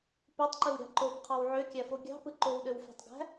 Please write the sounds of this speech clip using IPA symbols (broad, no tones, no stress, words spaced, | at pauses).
pøtˤǃɯwɾʲɑ̤ ǃobqʰɑw ʕøkʲæfo ɡʲɑ̤pɯ ǃowɗøwfæ̤tˤɡæ̤